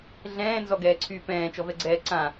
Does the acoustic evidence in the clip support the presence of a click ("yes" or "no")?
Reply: yes